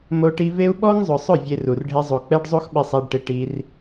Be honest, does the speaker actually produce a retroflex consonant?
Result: yes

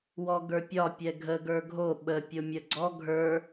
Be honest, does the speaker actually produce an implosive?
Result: yes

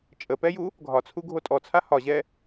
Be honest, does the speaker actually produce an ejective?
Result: yes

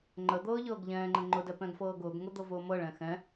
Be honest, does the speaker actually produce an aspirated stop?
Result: no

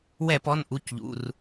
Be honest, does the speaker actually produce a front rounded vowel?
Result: no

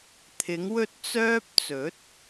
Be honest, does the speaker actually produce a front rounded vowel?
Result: yes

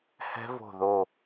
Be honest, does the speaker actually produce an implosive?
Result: no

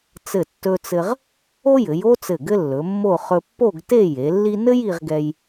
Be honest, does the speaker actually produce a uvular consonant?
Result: yes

